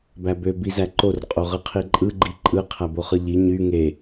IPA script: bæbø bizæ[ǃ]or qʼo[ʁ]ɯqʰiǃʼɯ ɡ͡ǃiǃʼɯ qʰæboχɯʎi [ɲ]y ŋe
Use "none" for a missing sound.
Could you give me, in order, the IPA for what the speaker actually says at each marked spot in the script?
ǃ, ʁ, ɲ

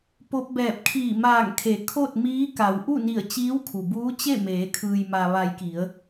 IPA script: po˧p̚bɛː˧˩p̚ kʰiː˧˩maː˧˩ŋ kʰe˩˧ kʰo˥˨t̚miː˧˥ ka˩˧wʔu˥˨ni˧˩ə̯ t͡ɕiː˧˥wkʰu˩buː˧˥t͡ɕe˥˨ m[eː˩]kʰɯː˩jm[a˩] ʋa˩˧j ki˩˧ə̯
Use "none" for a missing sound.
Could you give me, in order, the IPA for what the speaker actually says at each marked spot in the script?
eː˩˧, a˩

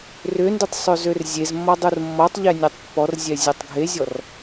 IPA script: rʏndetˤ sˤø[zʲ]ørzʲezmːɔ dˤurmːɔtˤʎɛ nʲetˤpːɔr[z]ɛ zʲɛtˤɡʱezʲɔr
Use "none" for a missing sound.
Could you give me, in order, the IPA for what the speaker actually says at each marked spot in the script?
z, zʲ

